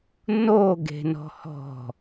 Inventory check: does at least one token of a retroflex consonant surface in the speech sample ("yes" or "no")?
no